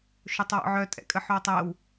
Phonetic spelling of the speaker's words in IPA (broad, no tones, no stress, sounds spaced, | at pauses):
ʃ o tˤ w ɔ̰ ʕ œ tʼ ɛ̰ kʼ ə ħ o w tˤ ɛ w